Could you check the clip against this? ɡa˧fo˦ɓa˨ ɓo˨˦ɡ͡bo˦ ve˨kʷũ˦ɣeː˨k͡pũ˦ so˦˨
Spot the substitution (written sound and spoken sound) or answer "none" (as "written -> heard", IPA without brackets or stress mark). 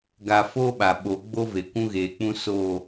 none